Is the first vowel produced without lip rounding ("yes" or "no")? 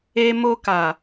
yes